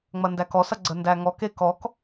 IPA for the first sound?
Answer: ŋ͡m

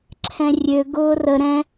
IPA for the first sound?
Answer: ǁʰ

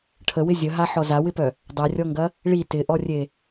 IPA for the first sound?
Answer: ʈʰ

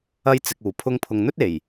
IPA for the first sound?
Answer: ɐ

